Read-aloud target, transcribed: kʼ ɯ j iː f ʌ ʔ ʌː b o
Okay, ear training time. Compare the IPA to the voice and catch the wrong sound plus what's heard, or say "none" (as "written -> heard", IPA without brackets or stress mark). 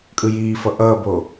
none